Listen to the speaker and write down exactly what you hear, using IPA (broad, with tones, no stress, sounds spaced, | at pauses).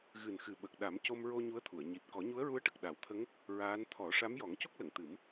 ɣ ɨ˨˩ n x ɨ˨˩ ɓ ə˨˩ k̚ ɗ a˨˩˦ m c o˧ m ɹ o˧ ɲ u˧˥ ə̯ t̪ʰ u˨˩˨ ə̯ ɲ i˨˩ t̚ k ɔ˨˩˦ ɲ u˧˥ ə̯ ɹ u˧˥ ə̯ ʈ ə˨˩ k̚ ɗ a˨˩˦ w t̪ʰ ə˧˥ ŋ | ɹ aː˧˥ n t̪ʰ ɔ˨˩˦ ʂ a˧˥ m j ɔ˨˩˦ ŋ c o˦˥ k̚ l ə˨˩˨ ŋ t̪ ɨ˨˩˦ m